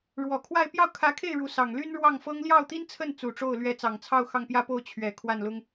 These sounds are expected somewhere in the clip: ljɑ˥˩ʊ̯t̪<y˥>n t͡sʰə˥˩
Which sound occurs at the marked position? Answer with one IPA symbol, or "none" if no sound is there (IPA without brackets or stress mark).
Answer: i˥